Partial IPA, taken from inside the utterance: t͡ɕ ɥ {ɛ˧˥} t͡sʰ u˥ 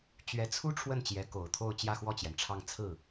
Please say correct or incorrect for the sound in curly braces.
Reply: correct